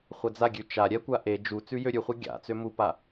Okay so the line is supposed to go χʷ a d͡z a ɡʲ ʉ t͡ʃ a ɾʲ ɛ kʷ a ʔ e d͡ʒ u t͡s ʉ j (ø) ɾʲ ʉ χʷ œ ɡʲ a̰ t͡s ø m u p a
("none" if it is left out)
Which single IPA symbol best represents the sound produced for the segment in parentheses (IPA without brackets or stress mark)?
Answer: ø